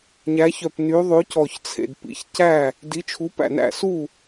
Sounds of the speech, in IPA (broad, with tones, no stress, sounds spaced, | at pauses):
ɲ æ˨˥ ç œ˧˩ p n y˨˥ ðˤ ʉ˨˥ c ɔ˧˩ ç t͡sʰ ḛ˧˩ d p ḭ˨˥ ç c æ˥˩ | d i˨˥ t͡ʃʰ u˨˥ p æ̰˥˩ n æ̰˥˩ s u˥˩